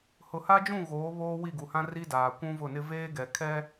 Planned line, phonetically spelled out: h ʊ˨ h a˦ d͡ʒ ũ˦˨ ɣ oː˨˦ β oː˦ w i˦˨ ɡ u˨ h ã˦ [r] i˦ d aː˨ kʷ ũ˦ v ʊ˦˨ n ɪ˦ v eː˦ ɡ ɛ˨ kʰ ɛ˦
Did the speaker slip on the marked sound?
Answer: no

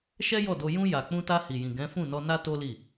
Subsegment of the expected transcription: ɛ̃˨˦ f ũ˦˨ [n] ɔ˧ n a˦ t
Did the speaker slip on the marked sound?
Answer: no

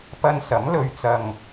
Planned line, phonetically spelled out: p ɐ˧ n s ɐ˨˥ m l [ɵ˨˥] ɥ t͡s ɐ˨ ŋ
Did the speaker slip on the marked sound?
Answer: yes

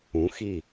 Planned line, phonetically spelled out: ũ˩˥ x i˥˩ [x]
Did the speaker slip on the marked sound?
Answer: yes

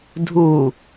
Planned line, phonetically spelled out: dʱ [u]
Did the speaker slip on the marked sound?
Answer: no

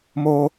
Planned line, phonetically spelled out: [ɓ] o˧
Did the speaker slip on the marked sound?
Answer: yes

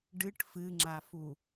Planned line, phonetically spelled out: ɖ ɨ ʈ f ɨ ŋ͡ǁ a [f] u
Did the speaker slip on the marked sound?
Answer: no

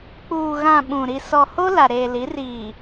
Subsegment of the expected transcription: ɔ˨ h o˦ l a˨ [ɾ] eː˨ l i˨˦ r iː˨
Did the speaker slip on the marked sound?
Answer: no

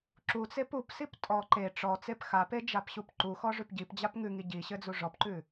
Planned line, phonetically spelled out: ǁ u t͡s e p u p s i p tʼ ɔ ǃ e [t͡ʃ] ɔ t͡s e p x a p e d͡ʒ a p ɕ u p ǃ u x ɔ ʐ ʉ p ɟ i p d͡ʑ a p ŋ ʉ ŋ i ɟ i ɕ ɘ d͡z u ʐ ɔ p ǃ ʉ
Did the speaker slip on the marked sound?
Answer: yes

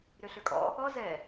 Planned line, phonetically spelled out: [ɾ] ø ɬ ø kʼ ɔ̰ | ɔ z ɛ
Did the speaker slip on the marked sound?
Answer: no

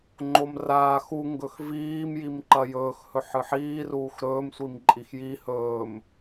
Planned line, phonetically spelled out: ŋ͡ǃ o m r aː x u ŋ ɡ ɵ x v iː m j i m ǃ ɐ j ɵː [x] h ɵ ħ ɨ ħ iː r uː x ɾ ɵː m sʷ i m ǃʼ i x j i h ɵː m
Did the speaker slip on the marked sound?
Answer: no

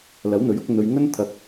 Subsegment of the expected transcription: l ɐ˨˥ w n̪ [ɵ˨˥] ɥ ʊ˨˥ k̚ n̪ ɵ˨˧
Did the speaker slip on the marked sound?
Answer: no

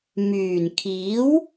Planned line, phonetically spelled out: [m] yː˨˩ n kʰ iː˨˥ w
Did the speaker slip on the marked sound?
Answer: no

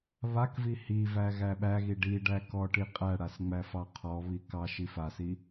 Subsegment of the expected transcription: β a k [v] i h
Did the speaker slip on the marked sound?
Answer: no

